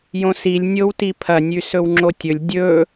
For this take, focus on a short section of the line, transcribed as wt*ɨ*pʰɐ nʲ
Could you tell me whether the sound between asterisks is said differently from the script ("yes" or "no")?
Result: yes